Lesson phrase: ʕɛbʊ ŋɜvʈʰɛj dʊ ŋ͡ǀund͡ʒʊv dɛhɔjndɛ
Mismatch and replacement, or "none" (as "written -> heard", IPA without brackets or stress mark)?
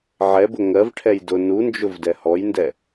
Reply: ŋ͡ǀ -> n